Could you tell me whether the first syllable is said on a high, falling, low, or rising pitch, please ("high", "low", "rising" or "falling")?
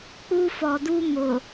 high